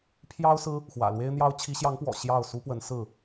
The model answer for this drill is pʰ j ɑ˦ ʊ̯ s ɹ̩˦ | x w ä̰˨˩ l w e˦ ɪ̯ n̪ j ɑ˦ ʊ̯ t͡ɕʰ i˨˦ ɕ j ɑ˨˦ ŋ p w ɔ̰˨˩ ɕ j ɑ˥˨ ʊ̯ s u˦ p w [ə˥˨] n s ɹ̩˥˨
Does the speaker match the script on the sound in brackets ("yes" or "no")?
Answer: no